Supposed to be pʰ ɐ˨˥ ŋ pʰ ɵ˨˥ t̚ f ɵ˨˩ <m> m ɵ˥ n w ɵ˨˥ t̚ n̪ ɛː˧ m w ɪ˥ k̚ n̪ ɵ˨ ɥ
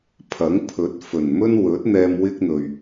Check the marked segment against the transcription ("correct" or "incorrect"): incorrect